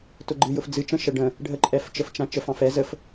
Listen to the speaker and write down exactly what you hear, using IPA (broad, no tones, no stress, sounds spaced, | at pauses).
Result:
t ʊ ɡ͡ǃ ɨ j ʊ f d͡z ɨ t͡ʃ ə̃ ʃ ə ɖ ə̃ | ɖʱ ə ǃʼ ɛ f t͡ʃ ə f t͡ʃ ã t͡ʃ ə f ɑ̃ f ɛ z ə f